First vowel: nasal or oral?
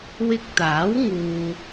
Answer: oral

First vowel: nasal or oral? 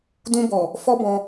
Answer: nasal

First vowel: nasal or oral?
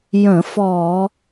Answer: nasal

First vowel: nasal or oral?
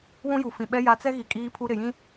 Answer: nasal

